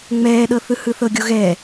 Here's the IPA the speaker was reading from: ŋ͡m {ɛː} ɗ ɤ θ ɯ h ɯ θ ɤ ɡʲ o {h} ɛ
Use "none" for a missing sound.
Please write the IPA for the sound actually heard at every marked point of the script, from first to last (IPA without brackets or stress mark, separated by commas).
ɛː, ɣ